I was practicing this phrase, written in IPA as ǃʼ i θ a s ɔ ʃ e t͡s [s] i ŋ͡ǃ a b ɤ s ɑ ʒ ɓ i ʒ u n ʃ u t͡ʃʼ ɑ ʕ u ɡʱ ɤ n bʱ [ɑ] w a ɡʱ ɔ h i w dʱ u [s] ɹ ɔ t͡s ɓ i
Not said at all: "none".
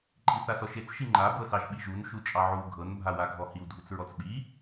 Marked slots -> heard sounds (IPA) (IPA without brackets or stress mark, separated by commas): ʃ, a, t͡s